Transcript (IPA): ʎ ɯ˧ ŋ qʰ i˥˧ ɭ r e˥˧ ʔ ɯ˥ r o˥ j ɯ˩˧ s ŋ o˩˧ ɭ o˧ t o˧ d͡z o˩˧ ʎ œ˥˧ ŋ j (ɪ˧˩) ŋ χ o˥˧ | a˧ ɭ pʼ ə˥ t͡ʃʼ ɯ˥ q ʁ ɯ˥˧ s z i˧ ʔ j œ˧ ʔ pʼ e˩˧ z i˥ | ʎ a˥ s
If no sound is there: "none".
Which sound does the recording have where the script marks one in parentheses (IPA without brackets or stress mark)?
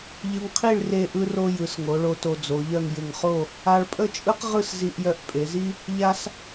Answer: ɪ˧˩